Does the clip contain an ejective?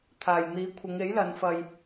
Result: no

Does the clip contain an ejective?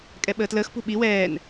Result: yes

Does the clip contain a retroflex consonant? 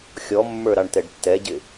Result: yes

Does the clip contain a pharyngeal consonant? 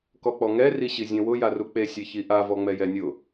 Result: no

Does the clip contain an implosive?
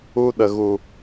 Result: yes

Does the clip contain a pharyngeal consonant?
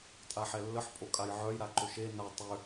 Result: yes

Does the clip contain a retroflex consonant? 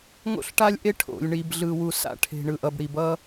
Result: yes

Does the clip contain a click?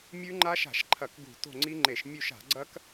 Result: yes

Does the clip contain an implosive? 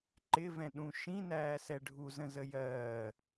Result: yes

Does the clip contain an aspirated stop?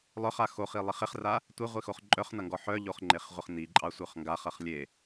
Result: no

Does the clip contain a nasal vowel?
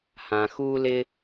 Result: yes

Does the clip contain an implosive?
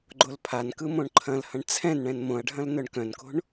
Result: no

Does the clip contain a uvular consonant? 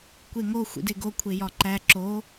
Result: no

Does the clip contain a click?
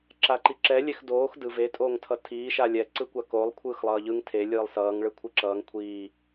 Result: yes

